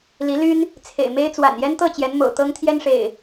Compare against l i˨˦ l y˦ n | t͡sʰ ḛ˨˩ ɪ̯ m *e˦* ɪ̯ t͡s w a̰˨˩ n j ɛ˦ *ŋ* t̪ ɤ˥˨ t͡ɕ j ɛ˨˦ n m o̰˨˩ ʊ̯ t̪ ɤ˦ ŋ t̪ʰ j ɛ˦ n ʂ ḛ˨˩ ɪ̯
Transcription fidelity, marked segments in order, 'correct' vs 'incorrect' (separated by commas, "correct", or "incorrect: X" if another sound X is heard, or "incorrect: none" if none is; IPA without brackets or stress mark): correct, incorrect: n